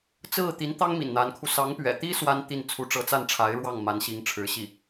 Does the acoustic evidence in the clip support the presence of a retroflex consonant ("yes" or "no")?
yes